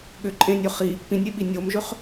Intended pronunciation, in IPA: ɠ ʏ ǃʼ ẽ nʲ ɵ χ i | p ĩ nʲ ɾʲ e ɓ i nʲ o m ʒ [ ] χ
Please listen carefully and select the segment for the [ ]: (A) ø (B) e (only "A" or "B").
A